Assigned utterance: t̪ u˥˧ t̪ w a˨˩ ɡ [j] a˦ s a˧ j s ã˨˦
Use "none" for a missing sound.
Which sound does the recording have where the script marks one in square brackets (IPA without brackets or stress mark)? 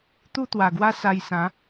w